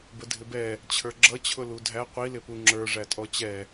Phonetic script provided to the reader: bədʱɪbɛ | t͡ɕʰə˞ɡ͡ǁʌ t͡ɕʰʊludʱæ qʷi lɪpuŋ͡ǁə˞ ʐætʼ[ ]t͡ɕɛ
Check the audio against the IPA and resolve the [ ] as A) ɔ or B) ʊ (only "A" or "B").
A